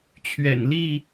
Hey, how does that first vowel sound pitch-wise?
low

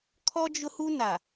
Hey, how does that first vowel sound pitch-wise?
high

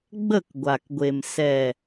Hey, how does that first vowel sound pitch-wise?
falling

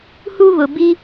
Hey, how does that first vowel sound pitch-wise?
high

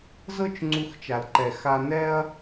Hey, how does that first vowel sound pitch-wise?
high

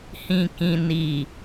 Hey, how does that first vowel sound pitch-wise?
low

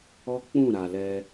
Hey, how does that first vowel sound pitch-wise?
high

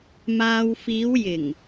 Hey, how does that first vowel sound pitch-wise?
low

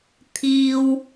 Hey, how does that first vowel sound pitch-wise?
high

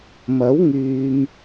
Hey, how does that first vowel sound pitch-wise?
rising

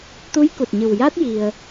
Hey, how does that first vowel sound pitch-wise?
rising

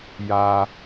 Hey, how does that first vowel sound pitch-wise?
high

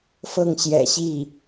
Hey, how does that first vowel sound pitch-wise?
falling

